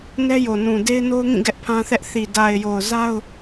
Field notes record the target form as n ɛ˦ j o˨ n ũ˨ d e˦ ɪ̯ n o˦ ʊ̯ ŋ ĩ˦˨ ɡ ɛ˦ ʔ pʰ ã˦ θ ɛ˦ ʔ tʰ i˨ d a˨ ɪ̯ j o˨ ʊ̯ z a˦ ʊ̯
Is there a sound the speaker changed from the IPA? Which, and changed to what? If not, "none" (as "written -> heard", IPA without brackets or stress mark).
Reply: tʰ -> θ